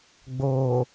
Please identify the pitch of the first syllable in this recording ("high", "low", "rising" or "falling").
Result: low